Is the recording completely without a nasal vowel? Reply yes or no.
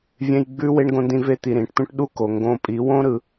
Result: no